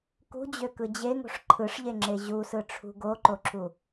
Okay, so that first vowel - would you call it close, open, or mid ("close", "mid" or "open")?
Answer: close